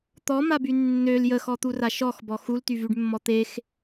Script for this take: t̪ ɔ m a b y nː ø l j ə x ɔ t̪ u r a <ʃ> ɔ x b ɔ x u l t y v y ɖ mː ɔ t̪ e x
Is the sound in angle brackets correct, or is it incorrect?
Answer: correct